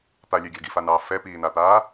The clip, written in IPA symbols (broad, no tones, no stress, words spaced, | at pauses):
t̪alʲɛɡʲɑ̤ ɡifanɑː fɛpiːnat̪aː